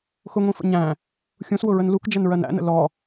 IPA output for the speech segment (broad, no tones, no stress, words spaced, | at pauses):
xʊŋʷĩfə̰ ɲæ̃ | xʲũswʊɹən lukd͡ʒænɹɜn æ̰nə̰ lɔ